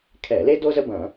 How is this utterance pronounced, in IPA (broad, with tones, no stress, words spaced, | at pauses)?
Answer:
kʰɛ˧˩˧le˥do˥ zə˥bɐ̃˧˩˧